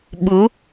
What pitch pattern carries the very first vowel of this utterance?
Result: rising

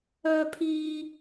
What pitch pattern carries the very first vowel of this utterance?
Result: high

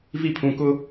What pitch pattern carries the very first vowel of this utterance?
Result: falling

